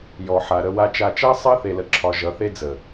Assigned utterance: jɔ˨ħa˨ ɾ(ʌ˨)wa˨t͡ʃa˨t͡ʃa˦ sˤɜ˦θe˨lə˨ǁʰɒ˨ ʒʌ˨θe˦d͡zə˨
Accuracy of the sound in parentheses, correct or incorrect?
incorrect